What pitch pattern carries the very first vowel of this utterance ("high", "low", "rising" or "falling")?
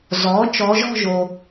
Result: rising